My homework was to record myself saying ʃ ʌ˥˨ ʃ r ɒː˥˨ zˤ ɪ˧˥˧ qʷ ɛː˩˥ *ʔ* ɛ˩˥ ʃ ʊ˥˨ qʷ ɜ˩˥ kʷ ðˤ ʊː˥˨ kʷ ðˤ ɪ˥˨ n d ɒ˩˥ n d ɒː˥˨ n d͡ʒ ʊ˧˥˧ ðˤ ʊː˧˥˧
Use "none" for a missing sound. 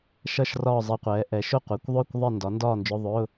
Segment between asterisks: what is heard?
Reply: ʔ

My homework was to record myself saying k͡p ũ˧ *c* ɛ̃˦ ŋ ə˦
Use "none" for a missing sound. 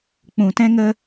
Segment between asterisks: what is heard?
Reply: t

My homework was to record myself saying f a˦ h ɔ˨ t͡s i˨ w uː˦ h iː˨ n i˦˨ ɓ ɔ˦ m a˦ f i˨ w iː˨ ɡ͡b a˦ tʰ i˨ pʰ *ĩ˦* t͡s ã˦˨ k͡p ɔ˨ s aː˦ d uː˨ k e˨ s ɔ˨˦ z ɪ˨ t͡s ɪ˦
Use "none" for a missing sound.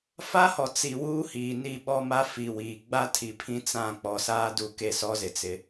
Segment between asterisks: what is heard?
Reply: ĩ˦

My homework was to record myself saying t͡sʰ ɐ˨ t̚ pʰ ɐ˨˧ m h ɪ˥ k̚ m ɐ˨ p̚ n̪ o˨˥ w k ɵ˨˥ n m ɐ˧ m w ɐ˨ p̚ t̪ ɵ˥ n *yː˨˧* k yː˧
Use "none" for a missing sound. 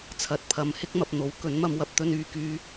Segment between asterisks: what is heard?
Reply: yː˨˧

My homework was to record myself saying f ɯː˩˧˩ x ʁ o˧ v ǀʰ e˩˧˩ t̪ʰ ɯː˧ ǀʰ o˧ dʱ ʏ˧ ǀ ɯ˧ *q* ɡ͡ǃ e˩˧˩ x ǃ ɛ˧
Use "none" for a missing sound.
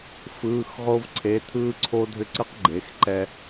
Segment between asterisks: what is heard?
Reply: q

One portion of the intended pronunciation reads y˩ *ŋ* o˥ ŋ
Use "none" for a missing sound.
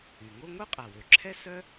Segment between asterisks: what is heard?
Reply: ŋ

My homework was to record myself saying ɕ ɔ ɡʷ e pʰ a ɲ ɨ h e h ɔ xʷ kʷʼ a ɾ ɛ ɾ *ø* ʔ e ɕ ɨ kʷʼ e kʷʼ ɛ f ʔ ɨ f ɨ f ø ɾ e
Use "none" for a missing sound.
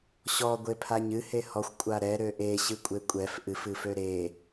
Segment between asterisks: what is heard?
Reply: ø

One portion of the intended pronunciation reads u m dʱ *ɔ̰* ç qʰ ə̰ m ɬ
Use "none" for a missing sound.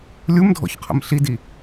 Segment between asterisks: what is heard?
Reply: ɔ̰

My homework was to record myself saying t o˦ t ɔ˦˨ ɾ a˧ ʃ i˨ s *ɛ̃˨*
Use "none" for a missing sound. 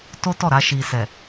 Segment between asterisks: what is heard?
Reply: ɛ˨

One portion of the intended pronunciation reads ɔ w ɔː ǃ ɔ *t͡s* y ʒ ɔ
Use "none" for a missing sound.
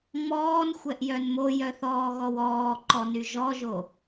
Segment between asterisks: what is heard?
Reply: n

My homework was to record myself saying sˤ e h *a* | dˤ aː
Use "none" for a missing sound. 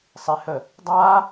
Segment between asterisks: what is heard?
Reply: ə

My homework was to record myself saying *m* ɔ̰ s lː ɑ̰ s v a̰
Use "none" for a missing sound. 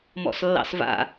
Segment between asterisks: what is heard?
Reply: m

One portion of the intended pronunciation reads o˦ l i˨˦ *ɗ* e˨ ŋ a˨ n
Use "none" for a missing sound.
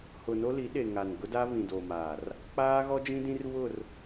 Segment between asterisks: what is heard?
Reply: ɗ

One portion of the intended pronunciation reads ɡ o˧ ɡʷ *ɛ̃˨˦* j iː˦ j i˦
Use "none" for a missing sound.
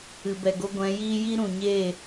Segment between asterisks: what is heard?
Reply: ɛ̃˨˦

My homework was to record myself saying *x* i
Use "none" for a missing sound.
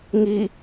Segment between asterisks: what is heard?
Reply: ŋ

